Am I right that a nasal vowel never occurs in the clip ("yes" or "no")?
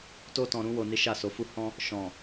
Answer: no